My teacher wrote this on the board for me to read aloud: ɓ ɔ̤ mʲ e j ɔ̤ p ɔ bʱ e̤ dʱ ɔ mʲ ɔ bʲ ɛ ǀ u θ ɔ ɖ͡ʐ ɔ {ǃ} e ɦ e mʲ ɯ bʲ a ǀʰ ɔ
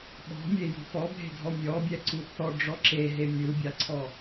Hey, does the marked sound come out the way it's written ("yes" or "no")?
no